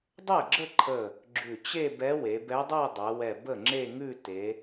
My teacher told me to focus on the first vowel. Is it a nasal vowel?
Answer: no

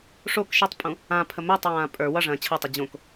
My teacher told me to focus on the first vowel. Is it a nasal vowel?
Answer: no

